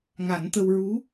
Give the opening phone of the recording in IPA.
ŋ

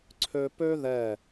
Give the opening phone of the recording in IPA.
ǀʰ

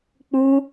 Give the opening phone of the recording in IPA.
k͡p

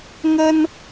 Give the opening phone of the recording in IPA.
ŋ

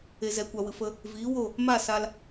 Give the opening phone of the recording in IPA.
e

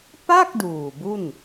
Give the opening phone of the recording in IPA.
p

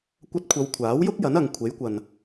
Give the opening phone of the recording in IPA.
kʷ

